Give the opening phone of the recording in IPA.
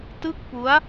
t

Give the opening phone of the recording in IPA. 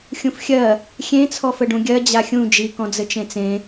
xʲ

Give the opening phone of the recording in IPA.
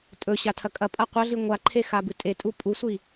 tʼ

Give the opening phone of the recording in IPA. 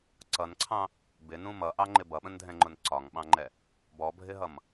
ǀ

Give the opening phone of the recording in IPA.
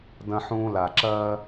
d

